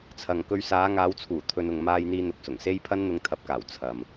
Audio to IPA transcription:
t͡sʰ ɐ˨ ŋ k ɵ˧ ɥ s aː˨˧ ŋ aː˨˧ w t͡sʰ uː˨˩ t̪ʰ ɵ˨ n ʊ˨ ŋ m aː˧ j n̪ iː˧ n̪ ʊ˨ k̚ s ʊ˨˩ ŋ s e˧ j pʰ ɐ˥ n n̪ ʊ˧ ŋ t̪ʰ ɐ˨˥ p̚ k aː˨˩ w t͡sʰ ɐ˨ m

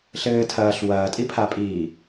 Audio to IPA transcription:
ɬ ɘː tʰ ɐː ɬ w ɐː tʼ i pʰ a pʼ iː

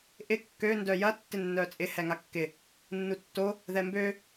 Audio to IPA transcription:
ʔ ɪ kː ø n d œ j ɐ tː ɪ nː œ t͡sʼ ɪ h ɛ ŋ a kː ɪ | nː u tː o | ð ɛ m b ø

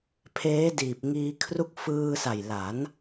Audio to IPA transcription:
pʰ eː˦˥ d iː˨˩ p̚ ŋ iː˧ kʰ r u˦˥ k̚ f ɯː˧ s a˨˩ j l a˩˦ n

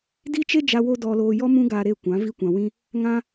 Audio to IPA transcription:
d i˦ t͡ʃ e˦ d͡ʒ a˧ w o˦ d ɔ˧ l oː˧ j ɔ˦ m ũ˦ ɡ a˧ ɾ e˦˨ kʷ ã˨˦ v i˧ kʷ ã˨ w ĩ˧ | ŋ ã˦

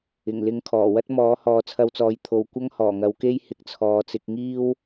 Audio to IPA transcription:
ɪ˨˩ ŋ l ɪ˧ ŋ kʰ ɔː˨˩ w ɐ˥ t̚ m ɔː˨˥ h ɔː˨ t͡sʰ ɐ˧ w t͡s ɔː˨˧ j t̪ʰ o˧ w kʷ ɐ˥ ŋ h ɔː˨˩ ŋ ɐ˨˧ w k e˥ j h ɪ˧ k̚ t͡sʰ ɔː˨˧ t͡s ɪ˧ k̚ ŋ iː˥ w

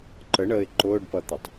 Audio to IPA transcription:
ǃ ə ɳ əː ɪ̯ ǃ ʊː ɖ p ʌ t̪ ʌ tˤ

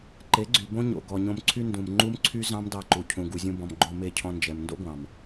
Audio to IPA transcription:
ǃ e˨˦ ɡ͡ǀ y˨ b õ˦ ɲ o̰˨ ɡ ɔ˨ ɲ õ˧ m ǀʰ y˦ n d ũ˨ m ŋ͡ǃ u˦ m ǀʰ y˦ z ɑ̃˦ m d ɑ˧ ǃ u˨ cʰ ũ˨ ɡ u˨ zʲ ũ˧ b ɔ̃˨ m ɡ͡ǃ o˧ m e˦˨ cʰ ɔ̃˧ n d͡ʒ ɛ˨ m n d o̰˦ ɡʷ ɑ̃˨ m

